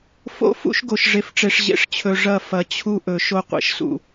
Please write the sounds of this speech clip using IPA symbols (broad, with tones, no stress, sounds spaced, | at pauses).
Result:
f o̰˦ f ṵ˦ ʃ ɡ o˨ ʃ ʐ e˨ f ʈ͡ʂ e˨ ʂ ʑ ḛ˨ ʂ t͡ɕʰ ɵ˨ ʐ ɐ˦˨ f ɐ˨ t͡ɕʰ u˦ ʔ ɵ˨ ʃ o˦ qʷ ḛ˨ ʃ s ṵ˨